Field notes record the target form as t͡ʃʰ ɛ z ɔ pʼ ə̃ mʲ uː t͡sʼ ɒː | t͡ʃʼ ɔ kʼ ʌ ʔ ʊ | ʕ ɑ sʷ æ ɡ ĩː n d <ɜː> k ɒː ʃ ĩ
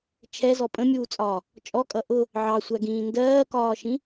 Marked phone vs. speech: correct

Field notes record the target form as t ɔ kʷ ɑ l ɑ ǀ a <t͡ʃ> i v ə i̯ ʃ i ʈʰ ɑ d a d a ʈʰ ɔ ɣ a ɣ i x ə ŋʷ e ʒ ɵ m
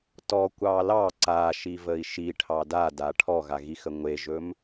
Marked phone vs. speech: incorrect: ʃ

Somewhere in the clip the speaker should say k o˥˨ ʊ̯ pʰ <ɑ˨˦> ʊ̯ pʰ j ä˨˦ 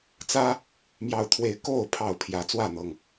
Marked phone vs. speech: incorrect: ɑ˥˨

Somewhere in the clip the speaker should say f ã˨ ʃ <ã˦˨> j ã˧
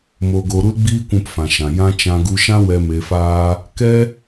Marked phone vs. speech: incorrect: ã˨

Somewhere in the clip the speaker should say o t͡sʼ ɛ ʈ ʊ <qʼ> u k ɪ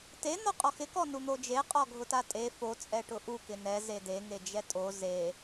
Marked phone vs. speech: incorrect: ʔ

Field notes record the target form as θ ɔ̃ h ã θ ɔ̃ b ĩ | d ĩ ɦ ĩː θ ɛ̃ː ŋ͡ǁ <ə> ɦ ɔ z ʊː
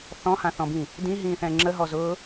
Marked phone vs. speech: correct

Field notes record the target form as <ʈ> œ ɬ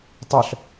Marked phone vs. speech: incorrect: tˤ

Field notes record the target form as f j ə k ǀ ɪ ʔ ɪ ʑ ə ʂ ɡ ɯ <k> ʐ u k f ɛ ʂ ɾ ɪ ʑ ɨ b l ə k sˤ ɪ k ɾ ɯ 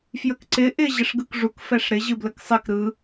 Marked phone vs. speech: correct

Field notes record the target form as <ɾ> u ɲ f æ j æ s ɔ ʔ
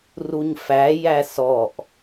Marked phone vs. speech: incorrect: r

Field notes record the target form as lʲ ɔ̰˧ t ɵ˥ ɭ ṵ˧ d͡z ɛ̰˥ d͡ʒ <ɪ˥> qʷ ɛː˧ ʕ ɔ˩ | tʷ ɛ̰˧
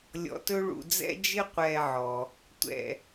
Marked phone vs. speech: correct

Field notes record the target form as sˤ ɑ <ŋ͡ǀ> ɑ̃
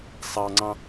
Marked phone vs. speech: correct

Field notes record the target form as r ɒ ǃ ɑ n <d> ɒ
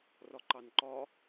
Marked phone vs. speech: incorrect: ǃ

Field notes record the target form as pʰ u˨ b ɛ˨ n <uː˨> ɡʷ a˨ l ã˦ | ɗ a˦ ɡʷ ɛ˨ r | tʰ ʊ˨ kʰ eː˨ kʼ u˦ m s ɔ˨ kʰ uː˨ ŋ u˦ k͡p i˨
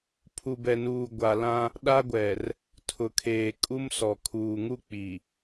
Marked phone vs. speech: correct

